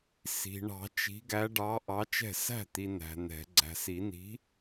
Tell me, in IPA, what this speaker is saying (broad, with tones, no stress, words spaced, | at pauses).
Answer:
si̤˨ ɳɑ̤˨˩˦ t͡ʃi̤˨˥ɡæ˨˥ ɖɑ˨˥ ʔɑ˨˥t͡ʃɛ̤˥˩ sæ̤˥˩t̪i˨ næ̤˨n̪ɛ̤˨˩˦ ɡ͡ǀæ̤˨si˨˩˦ni̤˨˥